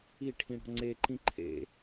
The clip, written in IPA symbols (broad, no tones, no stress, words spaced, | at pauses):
iʈʰĩɽɔ̤ ŋ͡ǀeǃĩ ǃʰḛ